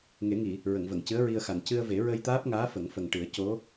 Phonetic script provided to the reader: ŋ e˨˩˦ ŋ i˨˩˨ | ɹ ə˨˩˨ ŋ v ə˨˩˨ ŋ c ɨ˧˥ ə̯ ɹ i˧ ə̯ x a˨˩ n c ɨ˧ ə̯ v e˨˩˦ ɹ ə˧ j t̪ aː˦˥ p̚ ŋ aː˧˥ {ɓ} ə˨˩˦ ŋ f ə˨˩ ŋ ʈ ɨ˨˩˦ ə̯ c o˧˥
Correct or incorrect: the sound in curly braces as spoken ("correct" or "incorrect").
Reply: incorrect